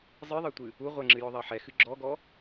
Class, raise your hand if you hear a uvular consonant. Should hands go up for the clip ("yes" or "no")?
yes